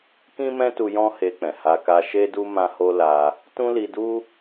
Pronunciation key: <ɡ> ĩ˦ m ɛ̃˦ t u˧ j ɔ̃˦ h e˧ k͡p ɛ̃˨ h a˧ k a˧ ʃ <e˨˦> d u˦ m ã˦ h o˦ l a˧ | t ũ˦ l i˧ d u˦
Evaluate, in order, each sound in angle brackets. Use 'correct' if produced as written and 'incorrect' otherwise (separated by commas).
incorrect, incorrect